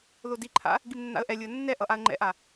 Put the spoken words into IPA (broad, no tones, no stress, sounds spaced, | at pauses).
ð o d i ǃʰ a̰ | ɡ i m nː a̰ ə̯ ʔ ɛ lʲ ɯ ə̯ nː ɛ ʔ ʌ ʔ a ə̯ ŋ͡ǃ ɛ̰ ʔ a